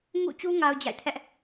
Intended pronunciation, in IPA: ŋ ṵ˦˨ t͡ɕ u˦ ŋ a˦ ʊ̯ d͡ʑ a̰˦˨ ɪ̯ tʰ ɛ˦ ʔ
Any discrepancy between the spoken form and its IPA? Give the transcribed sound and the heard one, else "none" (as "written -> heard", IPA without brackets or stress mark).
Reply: none